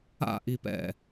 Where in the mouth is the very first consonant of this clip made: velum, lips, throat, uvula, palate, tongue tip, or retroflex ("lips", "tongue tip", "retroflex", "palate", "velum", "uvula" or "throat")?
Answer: throat